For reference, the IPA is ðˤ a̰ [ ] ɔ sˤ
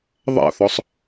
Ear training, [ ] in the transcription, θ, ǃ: θ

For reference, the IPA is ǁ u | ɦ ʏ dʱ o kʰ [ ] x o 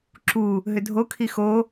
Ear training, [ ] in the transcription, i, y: i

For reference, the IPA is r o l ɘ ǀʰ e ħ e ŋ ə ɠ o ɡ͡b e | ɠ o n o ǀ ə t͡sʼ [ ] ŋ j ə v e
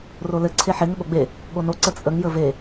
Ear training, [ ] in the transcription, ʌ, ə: ə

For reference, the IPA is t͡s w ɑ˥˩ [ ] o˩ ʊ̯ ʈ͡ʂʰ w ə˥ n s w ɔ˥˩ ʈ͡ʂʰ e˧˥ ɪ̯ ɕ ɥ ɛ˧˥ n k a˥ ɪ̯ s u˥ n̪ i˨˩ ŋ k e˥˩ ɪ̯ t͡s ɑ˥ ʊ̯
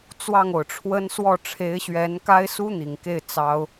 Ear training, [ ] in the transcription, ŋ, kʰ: ŋ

